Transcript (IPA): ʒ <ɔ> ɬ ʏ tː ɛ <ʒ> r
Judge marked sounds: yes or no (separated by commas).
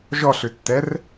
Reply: yes, no